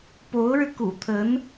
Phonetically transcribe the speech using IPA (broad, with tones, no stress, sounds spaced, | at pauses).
p o˧˥ ʊ̯ ɻ ɻ̩˧ k ṵ˨˩ t̪ʰ ə˧˥ n